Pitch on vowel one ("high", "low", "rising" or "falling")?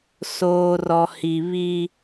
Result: low